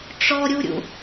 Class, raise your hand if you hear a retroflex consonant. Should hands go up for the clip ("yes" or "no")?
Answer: yes